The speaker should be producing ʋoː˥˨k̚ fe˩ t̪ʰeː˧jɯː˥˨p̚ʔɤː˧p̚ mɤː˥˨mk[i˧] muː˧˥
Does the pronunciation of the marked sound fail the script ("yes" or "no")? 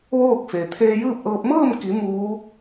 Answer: yes